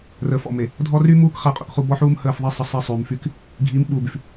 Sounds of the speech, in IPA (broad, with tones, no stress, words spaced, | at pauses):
rəː˨fɔ̰˨me˨ | dʱɔ˦ ry˦muː˦k χa˦qʼṵ˨kχu˦ bɔ˦ħuː˦m həː˦˨fðˤe˦ sˤə˦sˤe˦ sˤyː˨mfy˦k | ɡʱiː˨˦m ɓuː˨by˨f